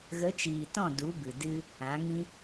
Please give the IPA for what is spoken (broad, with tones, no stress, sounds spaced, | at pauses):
ɣ ə˨˦ t͡ʃ iː˨ t ɔ̃˦˨ d u˨˦ b ɨ˨ d ɨ˧ | ã˨˦ ŋ ĩ˦